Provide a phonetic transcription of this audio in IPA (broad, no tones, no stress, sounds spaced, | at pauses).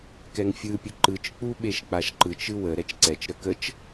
k ɛ ŋ fʲ ɯ pʲ ə ǃ ɯ t͡ʃ k͡p u ɓ e ʃ k͡p a ʃ ǃ ɯ t͡ʃ ɯ w ə ɾ ɛ t͡ʃ ǀ ɛ t͡ʃ ɾ ə k ə t͡ʃ